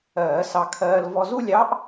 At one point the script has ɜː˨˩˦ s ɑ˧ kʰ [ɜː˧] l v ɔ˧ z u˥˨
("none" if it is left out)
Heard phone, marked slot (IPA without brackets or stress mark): ɜː˧